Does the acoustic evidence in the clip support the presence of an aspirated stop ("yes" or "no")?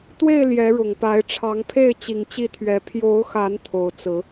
yes